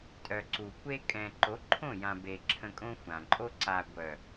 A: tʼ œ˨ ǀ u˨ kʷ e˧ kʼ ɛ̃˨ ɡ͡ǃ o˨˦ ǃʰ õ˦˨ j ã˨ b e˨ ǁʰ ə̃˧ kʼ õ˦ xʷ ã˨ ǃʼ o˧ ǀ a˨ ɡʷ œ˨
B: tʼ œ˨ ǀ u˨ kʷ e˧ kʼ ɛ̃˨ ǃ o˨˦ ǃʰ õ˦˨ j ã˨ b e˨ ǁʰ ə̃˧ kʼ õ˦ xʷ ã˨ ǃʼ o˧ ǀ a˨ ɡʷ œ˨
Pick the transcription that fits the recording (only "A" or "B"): B